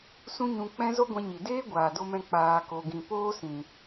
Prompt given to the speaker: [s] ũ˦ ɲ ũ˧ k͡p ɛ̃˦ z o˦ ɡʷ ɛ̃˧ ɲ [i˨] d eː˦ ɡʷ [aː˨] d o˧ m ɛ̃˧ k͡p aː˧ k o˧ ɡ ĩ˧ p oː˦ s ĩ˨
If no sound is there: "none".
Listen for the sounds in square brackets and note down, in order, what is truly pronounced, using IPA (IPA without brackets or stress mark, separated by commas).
s, i˨, aː˨